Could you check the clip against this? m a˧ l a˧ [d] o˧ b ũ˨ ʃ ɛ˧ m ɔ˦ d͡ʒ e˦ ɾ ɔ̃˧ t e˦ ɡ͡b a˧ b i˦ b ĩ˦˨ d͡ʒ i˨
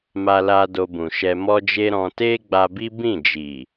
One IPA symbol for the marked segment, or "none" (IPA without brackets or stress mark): d